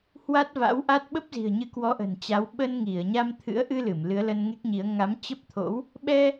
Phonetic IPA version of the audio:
h w a˦˥ t̚ v a̰˧˥ w ʔ a˦˥ t̚ ɓ ə˦˥ p̚ z i̤˨˩ ə̯ ɲ ɨ˨˦ k w ɔ˨˦ ʔ ə̤˨˩ n t͡ɕ a˨˦ w ɓ ə˧ n ŋ i˧˩ ə̯ ɲ a˧ m t̪ʰ ɨ̰˧˥ ə̯ ʔ ɨ˧ l ɨ˧˩ m l ɨ˨˦ ə̯ l ə˧ n ŋ e˦˥ k̚ ɲ i˨˦ ə̯ ŋ a˨˦ m t͡ɕ ə˦˥ p̚ t̪ʰ o̰˧˥ w | ɓ ɛ˧

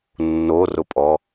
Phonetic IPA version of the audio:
nː o r ʊ pʼ ɔ

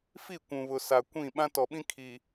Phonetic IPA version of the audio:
f i˦˨ kʷ ũ˨ β ʊ˨ s a˨ kʷ ĩ˦˨ ɓ ã˦ t ɔ˨ ɓ ĩ˦ kʰ i˨

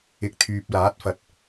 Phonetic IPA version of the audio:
ɪ˨ k̚ t̪ʰ yː˨ p̚ l aː˨˥ t̚ f ɐ˨˥ t̚

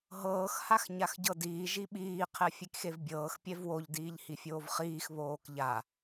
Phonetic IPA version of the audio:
ɦ ɤː x h a x ɲ a x ɟ ɤ d iː ʒ i ɓ iː qʰ ɛ fʲ e k x e v bʲ ɤː x pʲ ɛ v w o ʎ d iː ʎ h i fʲ oː v χ iː x β oː k ʎ a

